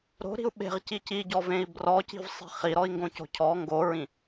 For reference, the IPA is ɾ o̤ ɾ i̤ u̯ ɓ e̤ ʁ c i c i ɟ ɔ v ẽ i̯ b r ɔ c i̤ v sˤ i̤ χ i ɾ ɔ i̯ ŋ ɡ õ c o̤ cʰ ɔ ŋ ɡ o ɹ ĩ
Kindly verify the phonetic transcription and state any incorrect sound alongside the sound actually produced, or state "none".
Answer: none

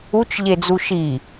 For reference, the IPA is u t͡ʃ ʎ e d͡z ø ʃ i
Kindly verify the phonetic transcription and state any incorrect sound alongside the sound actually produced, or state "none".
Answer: ø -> u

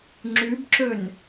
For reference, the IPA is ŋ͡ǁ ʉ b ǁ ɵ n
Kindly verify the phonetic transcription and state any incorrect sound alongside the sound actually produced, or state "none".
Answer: none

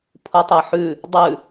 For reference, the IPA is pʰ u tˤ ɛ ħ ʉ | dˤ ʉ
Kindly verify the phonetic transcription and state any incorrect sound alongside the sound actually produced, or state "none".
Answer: none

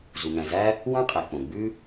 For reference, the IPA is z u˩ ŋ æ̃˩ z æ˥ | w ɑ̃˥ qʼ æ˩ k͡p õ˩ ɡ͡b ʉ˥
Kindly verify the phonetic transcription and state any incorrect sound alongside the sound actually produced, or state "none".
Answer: none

